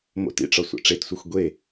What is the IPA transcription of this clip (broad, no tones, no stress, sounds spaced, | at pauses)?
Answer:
m o̰ t ḭ ʈ͡ʂ ɒ sʷ æ̰ ʈ͡ʂ e t sʷ æ xʷ ɡʷ e